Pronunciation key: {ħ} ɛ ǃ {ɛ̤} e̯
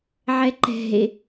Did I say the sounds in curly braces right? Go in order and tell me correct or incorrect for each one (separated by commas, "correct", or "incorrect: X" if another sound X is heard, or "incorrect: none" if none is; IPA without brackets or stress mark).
incorrect: ʕ, correct